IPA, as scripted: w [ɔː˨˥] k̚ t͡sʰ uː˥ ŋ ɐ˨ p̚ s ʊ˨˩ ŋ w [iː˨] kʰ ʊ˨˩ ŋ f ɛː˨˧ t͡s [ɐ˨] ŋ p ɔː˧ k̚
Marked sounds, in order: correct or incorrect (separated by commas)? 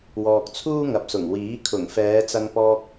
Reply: incorrect, incorrect, incorrect